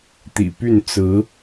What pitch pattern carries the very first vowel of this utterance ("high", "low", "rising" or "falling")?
low